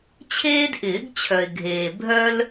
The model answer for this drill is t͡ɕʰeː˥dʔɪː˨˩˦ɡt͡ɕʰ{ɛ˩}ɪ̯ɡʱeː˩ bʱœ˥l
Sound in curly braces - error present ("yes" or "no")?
yes